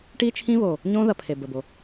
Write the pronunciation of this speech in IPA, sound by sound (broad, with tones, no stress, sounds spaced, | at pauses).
ʈ i˦ t͡ʃʰ ĩ˦ β o˨ | ɲ õ˦ ð ɐ˨ pʰ e˨ b ə˨ b o˨